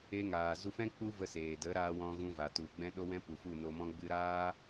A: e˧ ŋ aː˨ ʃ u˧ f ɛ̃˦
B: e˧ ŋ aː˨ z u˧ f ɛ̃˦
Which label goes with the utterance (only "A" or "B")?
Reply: B